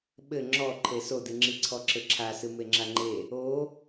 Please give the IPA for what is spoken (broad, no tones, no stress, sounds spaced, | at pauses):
ɓ ɘ ŋ͡ǁ ɔ ǃʰ e s o d ɨ ŋ͡ǁ i ǀʰ ɔ ǁ ɘ ǁʰ a s ɨ m e ŋ͡ǁ a ŋ͡ǃ e | o